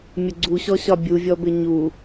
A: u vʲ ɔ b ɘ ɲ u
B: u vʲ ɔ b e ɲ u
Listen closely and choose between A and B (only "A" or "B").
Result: A